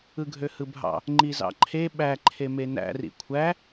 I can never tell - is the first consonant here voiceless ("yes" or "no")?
no